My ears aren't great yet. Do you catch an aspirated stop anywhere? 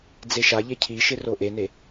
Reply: yes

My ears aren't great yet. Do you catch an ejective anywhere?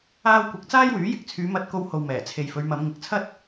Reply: no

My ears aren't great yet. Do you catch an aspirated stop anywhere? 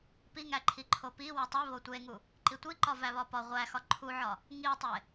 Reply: yes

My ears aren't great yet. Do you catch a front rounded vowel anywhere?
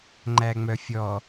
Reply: yes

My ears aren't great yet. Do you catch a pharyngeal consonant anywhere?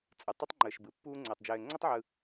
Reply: yes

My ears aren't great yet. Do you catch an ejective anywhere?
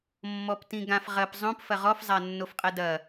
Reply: yes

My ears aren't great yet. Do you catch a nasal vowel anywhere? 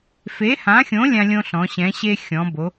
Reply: yes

